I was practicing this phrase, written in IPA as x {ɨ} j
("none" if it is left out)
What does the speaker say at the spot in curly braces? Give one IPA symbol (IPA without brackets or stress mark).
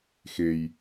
e